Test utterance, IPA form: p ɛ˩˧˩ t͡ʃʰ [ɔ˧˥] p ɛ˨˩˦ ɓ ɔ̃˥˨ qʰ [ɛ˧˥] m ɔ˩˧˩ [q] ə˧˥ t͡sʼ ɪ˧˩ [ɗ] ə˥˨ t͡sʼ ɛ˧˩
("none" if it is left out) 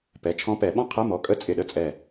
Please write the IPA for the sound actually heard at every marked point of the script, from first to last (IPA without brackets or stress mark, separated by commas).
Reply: ɔ̃˧˥, ɛ˧˥˧, kʼ, ɗ